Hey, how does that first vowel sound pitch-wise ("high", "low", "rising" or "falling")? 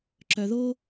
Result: low